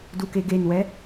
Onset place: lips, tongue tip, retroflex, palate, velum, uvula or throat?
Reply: tongue tip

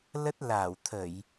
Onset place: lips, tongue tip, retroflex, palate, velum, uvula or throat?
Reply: tongue tip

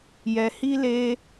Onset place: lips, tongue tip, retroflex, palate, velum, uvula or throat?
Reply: palate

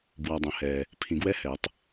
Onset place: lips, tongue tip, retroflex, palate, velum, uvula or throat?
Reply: lips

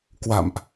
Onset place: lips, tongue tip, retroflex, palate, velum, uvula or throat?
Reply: velum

